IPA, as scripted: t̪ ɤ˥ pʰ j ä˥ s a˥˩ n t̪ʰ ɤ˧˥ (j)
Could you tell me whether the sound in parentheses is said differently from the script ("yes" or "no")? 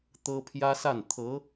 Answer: yes